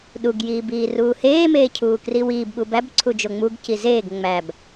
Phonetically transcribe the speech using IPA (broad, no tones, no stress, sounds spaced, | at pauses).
ɗ u ɡ j iː b iː r uː h eː m eː cʰ uː k r i w iː b ɓ u b æ b ǀʰ u d͡ʒ o ŋ͡m u ɡ c i z eː ɡ ŋ͡m æ b